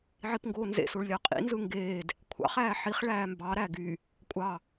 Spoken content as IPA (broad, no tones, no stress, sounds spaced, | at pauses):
ʕ i p ŋ ɡ oː n z ḛ s o ɭ lʲ ɑ qʼ ḭ n z ɯ ŋ ɡ eː d | kʷʰ ɑ̰ χ æː ħ i χ ɭ æː m b ɑ ɾ æ ɡ y | kʷʼ ɑ